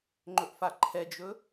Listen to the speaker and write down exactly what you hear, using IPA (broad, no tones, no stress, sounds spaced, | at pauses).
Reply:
ŋ͡ǃ ɵ ʔ f a ǃʰ ɛ d͡ʒ ɵ